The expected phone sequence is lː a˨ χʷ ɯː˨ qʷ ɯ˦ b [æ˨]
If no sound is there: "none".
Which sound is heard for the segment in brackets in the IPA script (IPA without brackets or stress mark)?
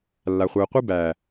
æ˨